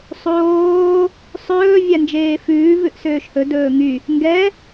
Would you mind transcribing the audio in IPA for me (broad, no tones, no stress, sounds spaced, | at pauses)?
sˤ oː | sˤ ɵː vʲ æ n d͡ʒ eː f ʉː v ʉ ʔ s øː ʃ h ɵ d ɵː ŋ y | ŋ ɡ ɛ